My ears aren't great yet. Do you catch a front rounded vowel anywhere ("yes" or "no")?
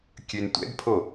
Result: yes